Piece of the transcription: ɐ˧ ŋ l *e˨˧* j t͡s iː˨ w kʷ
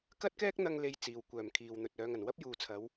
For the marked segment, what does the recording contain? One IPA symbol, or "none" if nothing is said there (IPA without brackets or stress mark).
e˧